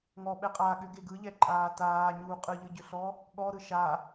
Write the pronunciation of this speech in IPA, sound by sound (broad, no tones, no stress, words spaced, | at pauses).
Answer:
ŋɔ ɓɛqʼa ɠʏɡe ɡɯʎɛǃʼaː taːɲuː qʼɯʎɯɟʏɬɔ | ɠɔɾɯ ʃa